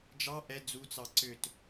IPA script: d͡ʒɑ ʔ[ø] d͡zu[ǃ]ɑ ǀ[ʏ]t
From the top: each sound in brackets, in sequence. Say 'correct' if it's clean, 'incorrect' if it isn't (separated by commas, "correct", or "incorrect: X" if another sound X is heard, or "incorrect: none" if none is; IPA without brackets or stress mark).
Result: incorrect: ɛ, incorrect: t͡s, correct